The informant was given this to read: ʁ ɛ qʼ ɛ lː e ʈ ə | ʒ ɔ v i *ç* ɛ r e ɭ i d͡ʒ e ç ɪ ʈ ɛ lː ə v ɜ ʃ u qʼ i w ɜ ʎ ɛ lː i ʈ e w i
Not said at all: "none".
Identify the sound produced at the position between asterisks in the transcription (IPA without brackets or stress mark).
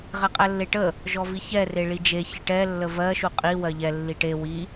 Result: ç